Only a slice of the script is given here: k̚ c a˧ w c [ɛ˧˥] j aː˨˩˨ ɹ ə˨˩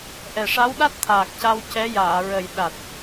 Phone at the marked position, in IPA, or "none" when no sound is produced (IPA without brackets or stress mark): ɛ˧˥